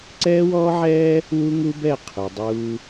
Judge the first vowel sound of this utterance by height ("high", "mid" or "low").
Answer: mid